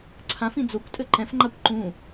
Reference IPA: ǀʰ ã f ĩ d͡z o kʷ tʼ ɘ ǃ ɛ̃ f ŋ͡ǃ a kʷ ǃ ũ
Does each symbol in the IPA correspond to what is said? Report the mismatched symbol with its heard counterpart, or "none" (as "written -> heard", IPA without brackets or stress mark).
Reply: none